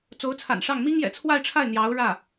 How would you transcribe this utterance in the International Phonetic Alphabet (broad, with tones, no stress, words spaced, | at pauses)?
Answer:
t͡so˧˥ʊ̯t͡sʰa̰˨˩nʂɑ˥˩ŋ mi˥ŋjɛ̰˨˩t͡sʰwa˥˧ɪ̯ʈ͡ʂʰa˥˩ɪ̯ n̪jɑ˧˥ʊ̯ɻä˥˩